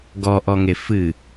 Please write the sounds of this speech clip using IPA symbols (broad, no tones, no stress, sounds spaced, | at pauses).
ɡ ɔ ʔ ɔ ŋ e f ɨ